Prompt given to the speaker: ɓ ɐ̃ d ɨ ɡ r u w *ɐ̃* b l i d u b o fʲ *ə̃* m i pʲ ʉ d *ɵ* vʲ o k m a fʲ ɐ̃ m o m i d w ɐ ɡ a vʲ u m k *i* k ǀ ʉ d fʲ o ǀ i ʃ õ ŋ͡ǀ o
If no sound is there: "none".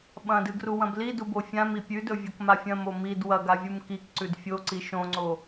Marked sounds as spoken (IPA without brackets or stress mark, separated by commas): ɐ̃, ã, ɵ, i